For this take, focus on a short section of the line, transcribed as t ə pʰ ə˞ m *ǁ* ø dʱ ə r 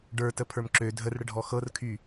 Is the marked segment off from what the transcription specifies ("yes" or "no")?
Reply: no